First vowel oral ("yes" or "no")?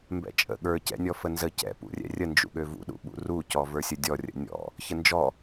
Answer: yes